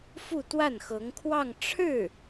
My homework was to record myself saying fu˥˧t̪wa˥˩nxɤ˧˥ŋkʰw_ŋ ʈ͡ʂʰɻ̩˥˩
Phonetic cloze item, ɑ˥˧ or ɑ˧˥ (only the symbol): ɑ˥˧